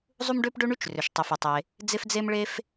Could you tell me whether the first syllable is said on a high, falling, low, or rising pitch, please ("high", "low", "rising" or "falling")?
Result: high